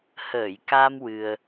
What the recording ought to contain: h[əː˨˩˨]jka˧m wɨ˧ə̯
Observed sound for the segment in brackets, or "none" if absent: əː˨˩˨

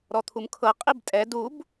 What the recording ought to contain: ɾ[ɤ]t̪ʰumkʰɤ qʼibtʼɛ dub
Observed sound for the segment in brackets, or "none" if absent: ɔ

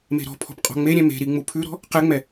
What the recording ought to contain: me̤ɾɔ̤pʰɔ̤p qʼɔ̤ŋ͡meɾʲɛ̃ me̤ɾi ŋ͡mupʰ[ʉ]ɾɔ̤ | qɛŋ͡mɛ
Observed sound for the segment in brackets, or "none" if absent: ʉ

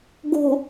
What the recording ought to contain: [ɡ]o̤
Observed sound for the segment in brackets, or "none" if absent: ɡ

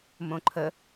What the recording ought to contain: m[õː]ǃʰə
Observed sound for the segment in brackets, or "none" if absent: õ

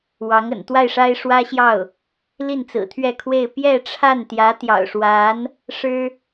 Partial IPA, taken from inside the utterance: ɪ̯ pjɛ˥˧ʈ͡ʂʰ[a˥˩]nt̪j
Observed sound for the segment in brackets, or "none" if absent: a˥˩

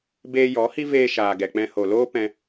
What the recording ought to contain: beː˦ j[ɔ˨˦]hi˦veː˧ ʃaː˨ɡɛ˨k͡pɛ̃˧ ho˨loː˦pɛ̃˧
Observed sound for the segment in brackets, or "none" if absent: ɔ˨˦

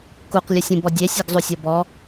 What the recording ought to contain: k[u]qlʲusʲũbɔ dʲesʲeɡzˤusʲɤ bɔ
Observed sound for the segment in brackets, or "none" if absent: u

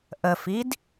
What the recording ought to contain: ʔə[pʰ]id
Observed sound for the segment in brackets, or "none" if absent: f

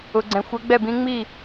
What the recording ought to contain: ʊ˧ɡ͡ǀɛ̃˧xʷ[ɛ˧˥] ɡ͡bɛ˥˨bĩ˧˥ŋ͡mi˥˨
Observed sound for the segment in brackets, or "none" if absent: ɛ˧˥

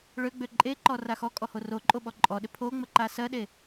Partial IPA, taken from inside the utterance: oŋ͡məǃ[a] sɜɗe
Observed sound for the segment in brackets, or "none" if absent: a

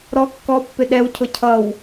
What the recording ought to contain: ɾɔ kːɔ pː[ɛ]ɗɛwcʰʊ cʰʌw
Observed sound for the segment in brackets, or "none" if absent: ɪ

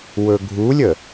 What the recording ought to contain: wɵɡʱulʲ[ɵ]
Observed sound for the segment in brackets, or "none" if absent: ə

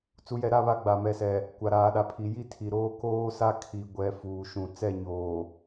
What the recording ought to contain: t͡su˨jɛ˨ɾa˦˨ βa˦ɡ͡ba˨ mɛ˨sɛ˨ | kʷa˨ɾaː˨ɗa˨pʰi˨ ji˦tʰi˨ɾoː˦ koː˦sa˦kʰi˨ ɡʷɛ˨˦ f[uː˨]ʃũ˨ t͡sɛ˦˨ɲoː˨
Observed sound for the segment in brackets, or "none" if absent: uː˨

